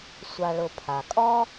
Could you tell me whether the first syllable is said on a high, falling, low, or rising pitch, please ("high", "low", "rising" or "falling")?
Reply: low